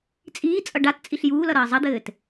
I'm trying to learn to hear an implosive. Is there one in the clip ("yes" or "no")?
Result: no